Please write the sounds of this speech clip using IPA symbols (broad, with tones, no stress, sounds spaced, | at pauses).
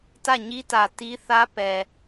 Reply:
t ä˦˨ ɲ i˦ t ä˨ t i˦ θ ä˦ p ɛ˨